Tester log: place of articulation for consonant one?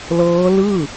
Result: alveolar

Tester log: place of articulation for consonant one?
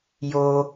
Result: palatal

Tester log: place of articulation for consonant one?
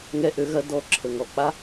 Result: velar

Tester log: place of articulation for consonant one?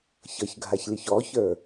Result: palatal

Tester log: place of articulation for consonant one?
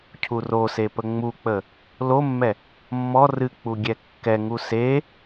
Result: palatal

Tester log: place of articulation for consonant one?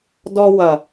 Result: alveolar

